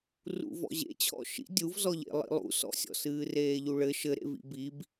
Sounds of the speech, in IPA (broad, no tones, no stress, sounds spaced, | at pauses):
r ṵ v ɔ̰ ʑ ḛ t͡ɕʰ ɔ̰ ʃ ḭ dʲ u v z ɔ ʎ ḛ lˠ ḭ lˠ ṵ s ɔ̰ sʲ ɔ̰ s ɨː r eː ʎ u ɭ ɘ ʃ ɘ ɾ ḛ v ḭ b i b